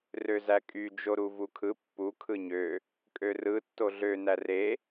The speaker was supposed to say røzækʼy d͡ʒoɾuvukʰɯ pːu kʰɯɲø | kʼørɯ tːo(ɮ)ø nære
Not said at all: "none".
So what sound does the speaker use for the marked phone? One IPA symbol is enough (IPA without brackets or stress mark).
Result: ɮ